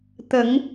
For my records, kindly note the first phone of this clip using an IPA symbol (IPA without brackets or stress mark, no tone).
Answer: t̪